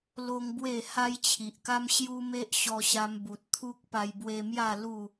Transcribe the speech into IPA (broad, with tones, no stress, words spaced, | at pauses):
lo˦ŋbwe˥˧ ha˦jt͡ɕʰi˨ʔka˦m ɕju˦me˦ʔ ɕɔ˧ɕa˧mbu˨t̚ t̪ʰu˦k̚ pa˧jbwe˧mja˥˧ lu˥˧